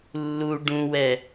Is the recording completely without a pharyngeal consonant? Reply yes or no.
yes